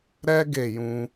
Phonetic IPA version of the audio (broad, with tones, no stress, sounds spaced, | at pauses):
ɾ ɛ˦ ɡ e˦˨ j ũ˧